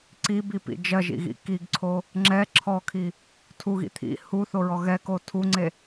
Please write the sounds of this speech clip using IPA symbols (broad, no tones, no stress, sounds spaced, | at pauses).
ǀ i b i p ḭ d͡ʒ ɜ ʒ ḭ ɣ ḭ k i ɡ ǀʰ o | ŋ͡ǁ ɛ ǁʰ ɔ kʰ i | tʰ u ɣ ḭ t̪ʰ ḭ h u θ o ɹ ɔ ɣ ɛ k o tʰ u ŋ͡ǀ e